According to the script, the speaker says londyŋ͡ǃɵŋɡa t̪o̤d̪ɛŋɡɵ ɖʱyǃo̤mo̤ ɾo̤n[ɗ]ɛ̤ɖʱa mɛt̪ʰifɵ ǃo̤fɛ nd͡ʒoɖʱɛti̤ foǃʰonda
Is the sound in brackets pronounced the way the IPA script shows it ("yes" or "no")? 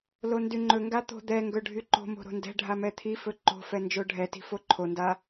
no